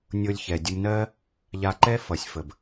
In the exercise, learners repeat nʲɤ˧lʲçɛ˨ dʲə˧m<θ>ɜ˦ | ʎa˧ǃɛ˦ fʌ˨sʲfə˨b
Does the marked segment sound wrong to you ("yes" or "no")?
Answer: yes